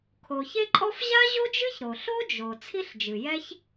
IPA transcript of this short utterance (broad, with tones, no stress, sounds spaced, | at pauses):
kʰ o˩ ç e˥ ǃʼ ɔ˥ f ʑ a˥ ʑ o˥ d͡ʒ ɨ˥ ç ɾ o˩ ɬ o˥ d͡ʒ o˩ t͡sʰ i˥ ɬ d͡ʒ ɨ˩ j ɛ˥ ç